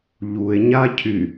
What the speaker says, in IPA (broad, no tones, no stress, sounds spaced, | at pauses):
ʎ u e̯ ɲ a cʰ y